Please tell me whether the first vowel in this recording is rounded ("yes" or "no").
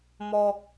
yes